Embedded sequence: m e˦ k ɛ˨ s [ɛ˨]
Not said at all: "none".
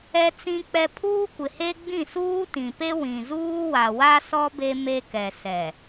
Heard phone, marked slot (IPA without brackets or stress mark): ɛ˨